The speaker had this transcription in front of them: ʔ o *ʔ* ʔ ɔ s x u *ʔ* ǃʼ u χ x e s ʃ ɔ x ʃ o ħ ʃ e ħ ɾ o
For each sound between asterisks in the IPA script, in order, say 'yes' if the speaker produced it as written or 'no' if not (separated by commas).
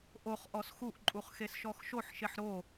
no, yes